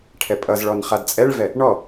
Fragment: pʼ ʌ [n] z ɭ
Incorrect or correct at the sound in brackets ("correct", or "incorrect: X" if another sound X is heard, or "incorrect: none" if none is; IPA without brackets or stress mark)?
incorrect: none